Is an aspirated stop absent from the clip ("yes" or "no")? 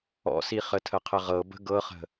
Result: no